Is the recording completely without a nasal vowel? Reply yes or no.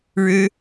yes